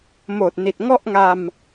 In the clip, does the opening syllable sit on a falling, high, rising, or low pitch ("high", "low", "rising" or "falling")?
low